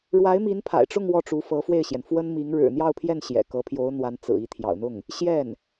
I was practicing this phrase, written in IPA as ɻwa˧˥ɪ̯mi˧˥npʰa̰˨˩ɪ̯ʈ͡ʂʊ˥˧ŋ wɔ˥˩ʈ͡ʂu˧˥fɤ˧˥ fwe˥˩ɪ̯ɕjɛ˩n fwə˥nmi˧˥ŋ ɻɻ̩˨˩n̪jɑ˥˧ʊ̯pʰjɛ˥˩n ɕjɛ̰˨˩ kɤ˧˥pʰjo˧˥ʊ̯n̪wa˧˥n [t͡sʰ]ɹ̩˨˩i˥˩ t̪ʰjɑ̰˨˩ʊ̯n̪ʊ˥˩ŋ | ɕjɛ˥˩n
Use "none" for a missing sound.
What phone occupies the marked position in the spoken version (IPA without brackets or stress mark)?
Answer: t͡s